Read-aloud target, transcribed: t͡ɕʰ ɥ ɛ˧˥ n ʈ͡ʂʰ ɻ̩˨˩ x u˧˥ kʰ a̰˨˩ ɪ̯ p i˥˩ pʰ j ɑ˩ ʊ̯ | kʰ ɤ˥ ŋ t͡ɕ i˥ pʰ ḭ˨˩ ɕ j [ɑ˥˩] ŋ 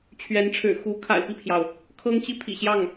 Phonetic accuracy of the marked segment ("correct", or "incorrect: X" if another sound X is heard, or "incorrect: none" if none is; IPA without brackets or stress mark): correct